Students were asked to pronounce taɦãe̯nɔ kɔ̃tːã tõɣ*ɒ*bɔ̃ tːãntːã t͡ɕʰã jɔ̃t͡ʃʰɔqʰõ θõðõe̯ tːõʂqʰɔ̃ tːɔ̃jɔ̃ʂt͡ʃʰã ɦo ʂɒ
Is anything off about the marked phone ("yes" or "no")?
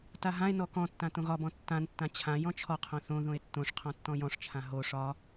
no